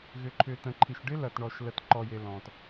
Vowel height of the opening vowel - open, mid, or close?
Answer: close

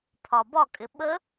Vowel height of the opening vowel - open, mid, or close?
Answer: open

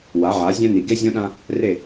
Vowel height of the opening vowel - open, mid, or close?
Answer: open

